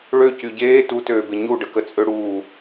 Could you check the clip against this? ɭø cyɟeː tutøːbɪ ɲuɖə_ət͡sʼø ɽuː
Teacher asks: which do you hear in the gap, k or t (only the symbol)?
k